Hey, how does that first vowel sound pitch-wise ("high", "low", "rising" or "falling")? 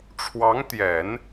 rising